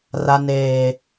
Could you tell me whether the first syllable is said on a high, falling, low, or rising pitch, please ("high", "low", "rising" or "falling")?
low